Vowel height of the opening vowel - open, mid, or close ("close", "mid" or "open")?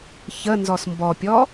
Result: mid